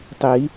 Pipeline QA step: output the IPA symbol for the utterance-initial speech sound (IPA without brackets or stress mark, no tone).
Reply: tˤ